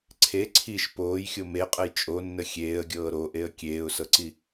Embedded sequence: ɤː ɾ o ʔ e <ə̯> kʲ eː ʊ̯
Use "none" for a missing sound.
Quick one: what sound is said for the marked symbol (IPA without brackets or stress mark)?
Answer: ə̯